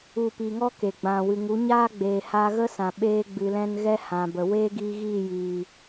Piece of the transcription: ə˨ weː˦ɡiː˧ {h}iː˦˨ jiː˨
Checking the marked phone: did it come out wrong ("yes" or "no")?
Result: yes